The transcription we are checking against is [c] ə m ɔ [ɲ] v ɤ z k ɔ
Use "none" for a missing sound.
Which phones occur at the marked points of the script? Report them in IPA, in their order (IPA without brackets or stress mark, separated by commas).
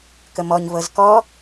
k, ɲ